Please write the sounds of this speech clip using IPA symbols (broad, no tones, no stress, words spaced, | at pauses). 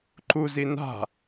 ǃuzi na̤